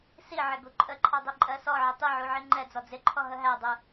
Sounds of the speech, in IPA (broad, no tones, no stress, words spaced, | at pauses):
siʕɪ ɡuǃʼəǃʰɑ dˤiǃʼɜsɔʕɪ tˤiʕu ʕiŋ͡ǃɛd͡zɔ d͡zɪǃʰɔ ɦəɦædˤu